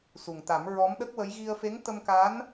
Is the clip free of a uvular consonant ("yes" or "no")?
yes